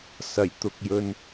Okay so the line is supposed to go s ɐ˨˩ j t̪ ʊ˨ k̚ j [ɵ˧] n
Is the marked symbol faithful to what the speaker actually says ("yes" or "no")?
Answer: yes